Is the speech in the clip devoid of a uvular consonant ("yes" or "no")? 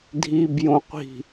no